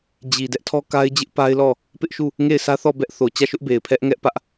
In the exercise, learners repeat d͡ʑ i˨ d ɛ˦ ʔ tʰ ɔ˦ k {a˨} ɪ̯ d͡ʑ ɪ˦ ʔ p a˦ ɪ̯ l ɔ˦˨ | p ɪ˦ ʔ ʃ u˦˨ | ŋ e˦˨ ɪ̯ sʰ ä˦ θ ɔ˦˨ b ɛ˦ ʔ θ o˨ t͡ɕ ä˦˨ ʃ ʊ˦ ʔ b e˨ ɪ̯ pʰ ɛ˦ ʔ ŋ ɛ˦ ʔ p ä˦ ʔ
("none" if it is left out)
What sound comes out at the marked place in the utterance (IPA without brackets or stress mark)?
a˦